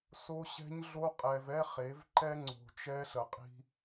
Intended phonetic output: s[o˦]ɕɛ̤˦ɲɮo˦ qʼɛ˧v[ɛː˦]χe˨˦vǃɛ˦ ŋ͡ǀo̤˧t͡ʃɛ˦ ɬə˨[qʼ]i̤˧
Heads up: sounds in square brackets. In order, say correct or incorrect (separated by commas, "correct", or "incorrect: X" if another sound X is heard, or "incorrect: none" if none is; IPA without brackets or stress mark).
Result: correct, incorrect: ɛ˦, correct